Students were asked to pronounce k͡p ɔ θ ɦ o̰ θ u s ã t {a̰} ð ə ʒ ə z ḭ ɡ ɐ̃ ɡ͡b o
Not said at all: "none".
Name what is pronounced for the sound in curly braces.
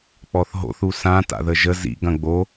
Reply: a̰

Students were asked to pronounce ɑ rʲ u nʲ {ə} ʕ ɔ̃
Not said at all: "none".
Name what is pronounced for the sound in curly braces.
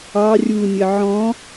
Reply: ə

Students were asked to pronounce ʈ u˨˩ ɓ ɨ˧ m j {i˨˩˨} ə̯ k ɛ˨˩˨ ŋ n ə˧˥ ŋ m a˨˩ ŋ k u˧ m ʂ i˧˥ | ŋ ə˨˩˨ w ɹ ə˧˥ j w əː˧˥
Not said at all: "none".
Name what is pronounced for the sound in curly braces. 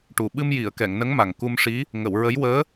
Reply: i˨˩˨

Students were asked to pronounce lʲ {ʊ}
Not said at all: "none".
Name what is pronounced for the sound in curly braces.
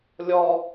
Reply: ɔ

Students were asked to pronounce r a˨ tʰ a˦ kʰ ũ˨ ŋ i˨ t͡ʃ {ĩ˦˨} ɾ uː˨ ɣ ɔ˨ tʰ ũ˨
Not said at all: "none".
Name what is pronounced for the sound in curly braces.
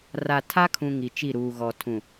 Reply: i˦˨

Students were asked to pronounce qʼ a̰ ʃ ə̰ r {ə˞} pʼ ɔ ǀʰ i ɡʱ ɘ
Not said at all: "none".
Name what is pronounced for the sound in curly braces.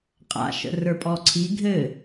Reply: ə˞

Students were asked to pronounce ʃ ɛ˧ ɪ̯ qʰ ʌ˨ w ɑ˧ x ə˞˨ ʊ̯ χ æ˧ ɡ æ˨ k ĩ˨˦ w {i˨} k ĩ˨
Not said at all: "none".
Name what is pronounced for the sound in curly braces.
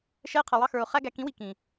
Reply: i˨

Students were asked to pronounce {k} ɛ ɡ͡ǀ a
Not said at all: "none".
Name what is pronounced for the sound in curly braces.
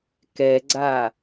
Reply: k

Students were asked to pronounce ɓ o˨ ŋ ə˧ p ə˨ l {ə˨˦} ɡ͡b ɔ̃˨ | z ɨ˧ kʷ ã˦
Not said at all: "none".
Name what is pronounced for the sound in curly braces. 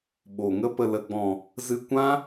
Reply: ə˨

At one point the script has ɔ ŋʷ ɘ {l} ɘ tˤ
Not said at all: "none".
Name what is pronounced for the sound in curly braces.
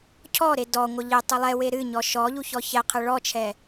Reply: ʎ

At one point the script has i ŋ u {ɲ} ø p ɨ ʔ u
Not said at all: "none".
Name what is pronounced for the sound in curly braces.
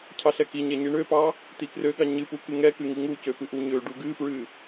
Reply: c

